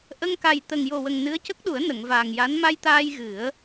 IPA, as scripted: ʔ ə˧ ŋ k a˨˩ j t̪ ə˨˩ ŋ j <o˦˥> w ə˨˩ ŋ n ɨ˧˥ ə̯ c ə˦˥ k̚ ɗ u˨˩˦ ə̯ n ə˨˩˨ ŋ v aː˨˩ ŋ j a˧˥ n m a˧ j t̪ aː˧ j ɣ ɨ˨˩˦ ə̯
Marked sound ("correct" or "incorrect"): incorrect